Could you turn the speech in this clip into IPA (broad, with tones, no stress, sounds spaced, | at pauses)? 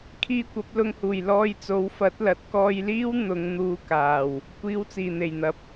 kʰ iː˧ kʷ ɐ˨˥ p̚ l ʊ˧ ŋ h uː˨˩ j l ɔː˧ j t͡s o˨˥ w f ɐ˨˥ t̚ l ɐ˨˥ t̚ k ɔː˧ j l iː˥ w n̪ ʊ˨˧ ŋ n̪ uː˧ k aː˨˩ w | kʷ iː˨˧ w t͡s iː˨˩ n̪ e˨˩ j n̪ ɐ˨˥ p̚